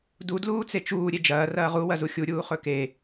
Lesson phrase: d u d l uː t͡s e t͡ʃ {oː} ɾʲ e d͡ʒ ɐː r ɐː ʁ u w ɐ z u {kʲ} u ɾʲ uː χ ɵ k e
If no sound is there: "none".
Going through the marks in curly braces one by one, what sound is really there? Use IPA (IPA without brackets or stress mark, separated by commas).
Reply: uː, xʲ